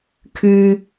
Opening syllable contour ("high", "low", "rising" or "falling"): low